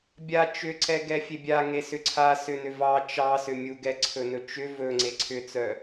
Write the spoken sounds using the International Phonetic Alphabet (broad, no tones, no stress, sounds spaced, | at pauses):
bʲ a t͡ʃ ʏ ǀ ɛ ɡ ɛ fʲ e bʲ a ŋ e s ʏ ǀʰ a s ʏ n ʏ v ɑ t͡ʃ ɑ s ʏ mʲ u ɡ ɛ ǀʰ ɵ n ɵ t͡ʃ ʏ v ɵ ŋ͡ǀ e ǀʰ ʏ t͡s œ